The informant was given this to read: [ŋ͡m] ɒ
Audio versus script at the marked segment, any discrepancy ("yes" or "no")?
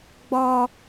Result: yes